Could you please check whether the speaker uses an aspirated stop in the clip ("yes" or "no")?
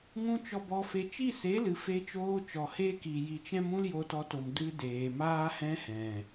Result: no